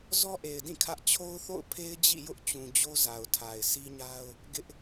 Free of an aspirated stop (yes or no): no